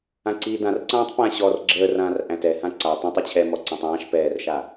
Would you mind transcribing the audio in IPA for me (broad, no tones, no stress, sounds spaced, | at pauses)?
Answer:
ã ǀ iː d ã r ǀ ãː tˤ p ã ɕ ɔ r ɡ͡ǁ əː r ãː r ʔ æ̃ t ɛ h ã ǀ a tˤ ə̃ tˤ ɛ t͡ɕʰ ɛ m ɔ ǀ æ̃ tˤ ãː ʃ p ɛː r ʃ a